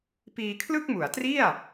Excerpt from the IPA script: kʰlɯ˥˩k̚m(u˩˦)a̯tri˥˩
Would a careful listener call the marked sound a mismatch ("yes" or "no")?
no